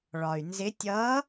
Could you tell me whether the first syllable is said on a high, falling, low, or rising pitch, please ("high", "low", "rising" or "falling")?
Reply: low